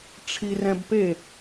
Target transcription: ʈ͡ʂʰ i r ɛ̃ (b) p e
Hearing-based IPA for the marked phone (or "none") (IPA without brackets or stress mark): b